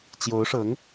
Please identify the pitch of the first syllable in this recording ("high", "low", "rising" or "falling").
rising